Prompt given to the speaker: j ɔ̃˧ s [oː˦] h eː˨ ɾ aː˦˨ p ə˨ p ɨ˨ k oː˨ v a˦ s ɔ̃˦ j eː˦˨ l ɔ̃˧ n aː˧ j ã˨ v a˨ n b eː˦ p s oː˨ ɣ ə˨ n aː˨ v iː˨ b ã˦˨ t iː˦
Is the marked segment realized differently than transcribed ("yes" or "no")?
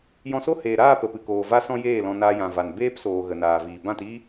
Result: yes